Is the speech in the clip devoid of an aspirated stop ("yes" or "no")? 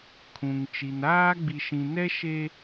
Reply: no